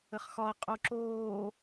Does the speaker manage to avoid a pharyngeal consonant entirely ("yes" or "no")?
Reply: yes